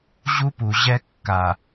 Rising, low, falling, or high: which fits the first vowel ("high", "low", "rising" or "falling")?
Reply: high